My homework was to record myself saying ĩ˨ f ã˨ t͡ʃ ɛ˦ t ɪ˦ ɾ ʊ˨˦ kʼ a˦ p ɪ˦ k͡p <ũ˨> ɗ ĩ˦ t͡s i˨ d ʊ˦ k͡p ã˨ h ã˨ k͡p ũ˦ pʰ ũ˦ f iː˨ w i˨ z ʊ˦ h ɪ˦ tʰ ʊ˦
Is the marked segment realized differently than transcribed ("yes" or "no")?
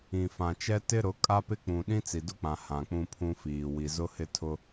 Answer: no